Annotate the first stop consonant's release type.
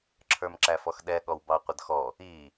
click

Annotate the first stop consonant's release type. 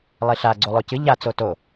click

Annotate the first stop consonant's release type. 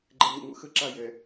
click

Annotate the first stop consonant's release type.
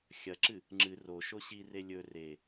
click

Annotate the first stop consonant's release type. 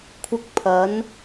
aspirated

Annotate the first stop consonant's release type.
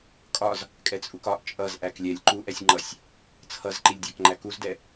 ejective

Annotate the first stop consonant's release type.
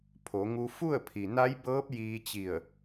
aspirated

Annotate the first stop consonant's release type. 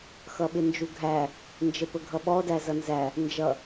implosive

